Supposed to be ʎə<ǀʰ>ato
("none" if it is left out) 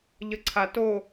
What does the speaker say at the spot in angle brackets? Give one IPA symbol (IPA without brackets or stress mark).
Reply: ǀʰ